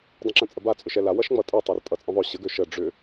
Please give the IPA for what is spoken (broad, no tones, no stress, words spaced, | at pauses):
dˤə̃ǁə̃t͡sʼəba t͡sʼʏʃɛla wʌʃŋ͡mʌtʼɛ tˤørtʼʌt͡sʼə̃ðˤø ɕəɡ øʃə ɖ͡ʐʏ